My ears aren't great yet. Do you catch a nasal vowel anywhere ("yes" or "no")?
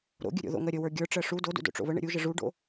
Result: no